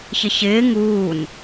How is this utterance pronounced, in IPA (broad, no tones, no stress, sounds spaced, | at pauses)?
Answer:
ç ɪ ç ɪː ŋ uː n